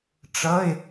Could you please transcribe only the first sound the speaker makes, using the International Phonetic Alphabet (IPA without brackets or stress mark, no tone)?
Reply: ʈ͡ʂ